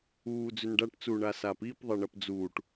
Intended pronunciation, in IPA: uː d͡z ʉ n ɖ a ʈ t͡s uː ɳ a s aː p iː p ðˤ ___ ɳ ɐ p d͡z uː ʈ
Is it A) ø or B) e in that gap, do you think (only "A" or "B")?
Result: B